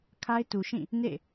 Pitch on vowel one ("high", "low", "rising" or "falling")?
high